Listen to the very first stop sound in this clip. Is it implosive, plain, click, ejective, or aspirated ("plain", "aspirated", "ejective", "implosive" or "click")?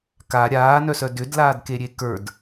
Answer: plain